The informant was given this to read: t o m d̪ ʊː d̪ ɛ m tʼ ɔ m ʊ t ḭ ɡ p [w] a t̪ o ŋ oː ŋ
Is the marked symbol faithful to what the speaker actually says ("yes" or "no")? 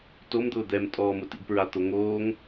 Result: no